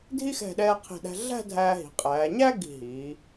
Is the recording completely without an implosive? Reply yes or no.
no